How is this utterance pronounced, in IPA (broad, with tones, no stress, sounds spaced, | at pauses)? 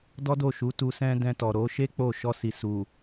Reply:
d ɔ˦ d o˦˨ ʃ u˨˦ t u˧ s ɛ̃˦ d ɛ̃˧ t ɔ˨ ɾ o˨˦ ʃ e˦ k͡p o˦˨ ʃ ɔ˧ s i˨ s u˨